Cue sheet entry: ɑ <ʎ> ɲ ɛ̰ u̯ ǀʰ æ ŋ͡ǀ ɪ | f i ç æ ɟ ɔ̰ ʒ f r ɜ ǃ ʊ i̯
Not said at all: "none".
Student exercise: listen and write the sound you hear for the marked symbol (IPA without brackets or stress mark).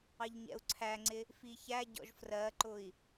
ʎ